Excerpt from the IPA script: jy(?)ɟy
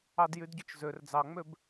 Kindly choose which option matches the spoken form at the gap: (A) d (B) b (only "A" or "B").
A